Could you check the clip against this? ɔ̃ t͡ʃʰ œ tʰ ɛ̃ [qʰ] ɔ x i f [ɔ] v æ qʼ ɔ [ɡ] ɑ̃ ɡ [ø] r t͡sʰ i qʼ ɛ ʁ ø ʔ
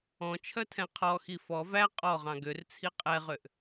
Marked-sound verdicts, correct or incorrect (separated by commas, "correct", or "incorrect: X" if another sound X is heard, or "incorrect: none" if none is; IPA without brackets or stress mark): correct, correct, incorrect: ʁ, correct